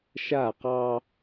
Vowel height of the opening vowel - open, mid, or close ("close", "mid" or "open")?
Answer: open